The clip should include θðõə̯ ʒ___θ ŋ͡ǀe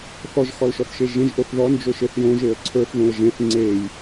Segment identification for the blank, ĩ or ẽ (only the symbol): ẽ